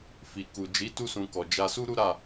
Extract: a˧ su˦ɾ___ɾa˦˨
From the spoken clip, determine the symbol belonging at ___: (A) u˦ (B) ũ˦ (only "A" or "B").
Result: A